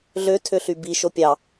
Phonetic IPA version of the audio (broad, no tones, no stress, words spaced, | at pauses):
ɮø tʰøɬybi ʃopʲɑ